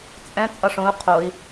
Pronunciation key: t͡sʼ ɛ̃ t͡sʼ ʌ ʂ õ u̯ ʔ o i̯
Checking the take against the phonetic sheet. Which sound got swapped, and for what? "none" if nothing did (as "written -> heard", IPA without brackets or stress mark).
ʔ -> qʰ